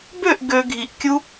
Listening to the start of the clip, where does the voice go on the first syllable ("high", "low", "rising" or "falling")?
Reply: falling